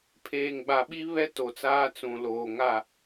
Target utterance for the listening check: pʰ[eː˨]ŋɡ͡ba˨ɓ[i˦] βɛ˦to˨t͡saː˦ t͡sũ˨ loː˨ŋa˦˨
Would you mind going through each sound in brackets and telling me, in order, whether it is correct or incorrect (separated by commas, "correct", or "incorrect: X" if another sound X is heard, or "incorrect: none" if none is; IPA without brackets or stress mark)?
correct, correct